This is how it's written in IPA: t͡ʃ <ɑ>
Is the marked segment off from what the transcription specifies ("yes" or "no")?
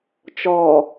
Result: yes